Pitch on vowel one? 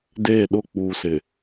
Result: falling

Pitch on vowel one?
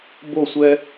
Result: falling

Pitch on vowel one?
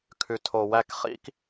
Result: low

